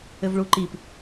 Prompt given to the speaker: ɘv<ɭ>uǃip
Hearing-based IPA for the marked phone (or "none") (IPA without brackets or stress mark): ɭ